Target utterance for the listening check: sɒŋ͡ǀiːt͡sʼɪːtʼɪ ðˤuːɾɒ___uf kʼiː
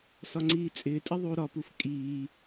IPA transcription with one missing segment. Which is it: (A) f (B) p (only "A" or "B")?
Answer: B